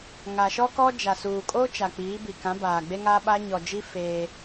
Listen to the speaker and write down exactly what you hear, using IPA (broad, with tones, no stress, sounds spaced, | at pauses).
ŋ a˨ ʃ ɔ˦ k ɔ˦ d͡ʒ a˨ s uː˨ kʼ o˦ t͡ʃ a˨ k͡p iː˨˦ b i˨ k ã˨˦ b aː˨ ɡ͡b e˦ ŋ aː˦ ɓ a˦ ɲ ɔ˨ d͡ʒ i˦ f eː˦